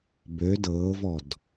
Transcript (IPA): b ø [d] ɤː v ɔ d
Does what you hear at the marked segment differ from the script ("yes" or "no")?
no